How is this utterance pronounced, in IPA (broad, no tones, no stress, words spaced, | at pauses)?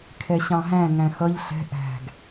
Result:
kʰɛɕɑ̃ɦæ̃ŋæ̃ xʌʎ ɬɛ̤ ʔæ̤ɡ